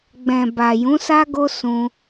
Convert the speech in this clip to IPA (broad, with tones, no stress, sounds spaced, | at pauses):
ɡ͡b ɛ̃˨ b a˨ j ũ˨˦ s a˦ ɡ o˦ s ũ˧